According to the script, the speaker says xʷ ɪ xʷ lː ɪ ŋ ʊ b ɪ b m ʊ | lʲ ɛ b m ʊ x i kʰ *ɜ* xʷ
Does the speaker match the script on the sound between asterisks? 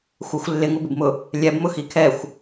no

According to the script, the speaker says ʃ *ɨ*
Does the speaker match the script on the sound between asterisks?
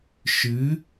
yes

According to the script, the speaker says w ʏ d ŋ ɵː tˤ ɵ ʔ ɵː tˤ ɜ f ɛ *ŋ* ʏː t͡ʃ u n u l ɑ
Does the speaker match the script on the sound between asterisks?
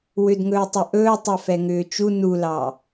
yes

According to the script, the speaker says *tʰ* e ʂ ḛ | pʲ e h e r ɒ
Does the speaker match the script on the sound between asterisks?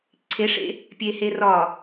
no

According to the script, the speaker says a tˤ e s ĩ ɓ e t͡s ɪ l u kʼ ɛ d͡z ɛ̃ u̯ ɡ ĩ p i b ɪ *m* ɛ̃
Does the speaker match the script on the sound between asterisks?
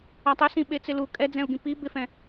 no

